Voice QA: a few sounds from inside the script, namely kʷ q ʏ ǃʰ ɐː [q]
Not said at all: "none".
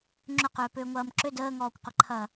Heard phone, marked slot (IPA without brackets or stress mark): none